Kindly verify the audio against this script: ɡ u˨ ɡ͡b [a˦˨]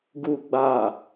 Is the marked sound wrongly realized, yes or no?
yes